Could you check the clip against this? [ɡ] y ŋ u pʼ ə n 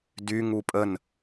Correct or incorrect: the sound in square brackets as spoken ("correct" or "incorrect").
incorrect